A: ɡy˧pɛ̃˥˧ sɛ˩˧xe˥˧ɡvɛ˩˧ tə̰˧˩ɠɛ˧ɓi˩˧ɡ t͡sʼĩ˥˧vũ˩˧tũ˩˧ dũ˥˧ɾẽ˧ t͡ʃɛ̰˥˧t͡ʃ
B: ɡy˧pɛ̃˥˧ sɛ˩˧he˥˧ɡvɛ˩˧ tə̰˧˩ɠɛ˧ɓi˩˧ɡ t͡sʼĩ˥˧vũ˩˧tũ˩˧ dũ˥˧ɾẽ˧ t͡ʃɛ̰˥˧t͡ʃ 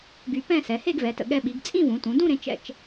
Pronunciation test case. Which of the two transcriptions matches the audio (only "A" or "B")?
B